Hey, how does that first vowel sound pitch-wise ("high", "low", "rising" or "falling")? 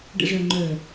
low